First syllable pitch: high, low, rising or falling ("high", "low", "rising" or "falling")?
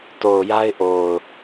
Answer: low